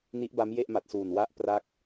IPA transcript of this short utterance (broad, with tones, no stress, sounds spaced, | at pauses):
n i˦˥ ʔ b a˦˥ m j e˥˩ ʔ m a˨˩ t̚ s uː˨˩ n w a˦˥ ʔ p r a˦˥ k̚